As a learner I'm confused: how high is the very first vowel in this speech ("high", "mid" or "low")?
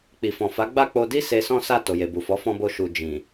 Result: high